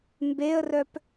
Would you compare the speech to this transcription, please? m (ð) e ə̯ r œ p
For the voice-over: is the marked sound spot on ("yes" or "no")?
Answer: no